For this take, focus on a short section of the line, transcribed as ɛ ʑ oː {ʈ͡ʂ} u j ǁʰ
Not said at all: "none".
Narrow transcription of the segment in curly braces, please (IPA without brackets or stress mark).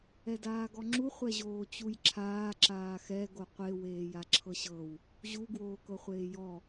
t͡ɕ